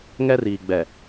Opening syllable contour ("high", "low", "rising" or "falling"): high